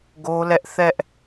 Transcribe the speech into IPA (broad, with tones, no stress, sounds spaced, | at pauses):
ɡ o˦ l ɛ˦ ʔ θ ɛ˦ ʔ